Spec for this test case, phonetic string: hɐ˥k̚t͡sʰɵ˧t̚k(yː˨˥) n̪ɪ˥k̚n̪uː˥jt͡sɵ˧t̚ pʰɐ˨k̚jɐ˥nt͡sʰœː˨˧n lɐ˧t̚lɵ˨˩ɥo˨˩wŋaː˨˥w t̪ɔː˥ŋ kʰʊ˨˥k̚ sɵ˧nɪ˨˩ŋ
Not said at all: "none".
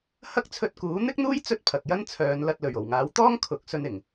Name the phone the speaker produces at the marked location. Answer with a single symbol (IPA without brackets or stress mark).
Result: uː˨˥